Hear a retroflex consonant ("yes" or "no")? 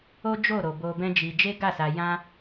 no